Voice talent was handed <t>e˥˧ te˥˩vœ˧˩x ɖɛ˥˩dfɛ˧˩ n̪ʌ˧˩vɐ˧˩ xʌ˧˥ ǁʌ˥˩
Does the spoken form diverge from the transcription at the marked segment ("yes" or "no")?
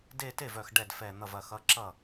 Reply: yes